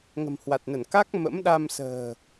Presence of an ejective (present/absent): absent